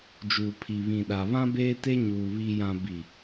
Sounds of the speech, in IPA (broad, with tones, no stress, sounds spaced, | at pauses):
d͡ʒ uː˨ pʰ i˨ β ĩ˨ ɗ a˨ β ã˦ b eː˦ t e˦ ɲ uː˨ β i˨ j ã˨ b i˨